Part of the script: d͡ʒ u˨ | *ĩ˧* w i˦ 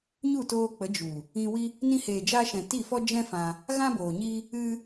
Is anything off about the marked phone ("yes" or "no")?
no